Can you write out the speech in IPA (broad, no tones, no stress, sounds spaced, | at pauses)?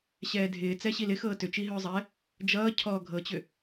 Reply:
ɕ ɛː dʱ ɪː t͡s ɛ ɕ i l ɪ x ɤː t ʏ t͡ʃ i ɦ ʏː zˤ ɛ | d͡ʒ ʌː cʰ ɔ ɡʱ ɤ t͡ɕ ʏ